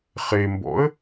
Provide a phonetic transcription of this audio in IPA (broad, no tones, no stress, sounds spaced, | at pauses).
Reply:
χ e m b ɔ̰ ə̯